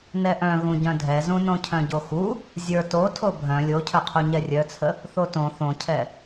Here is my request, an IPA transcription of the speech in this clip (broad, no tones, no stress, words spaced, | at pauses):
nɛʔœ̃ ɣũɟœ̃dʱɛzũ nõcʰœ̃ɟoxu | zʲə˞ to tʰobʱœ̃ lʲocʰœqʰu ɲɛrʲœt͡sʰə | θotõ θõcʰɛ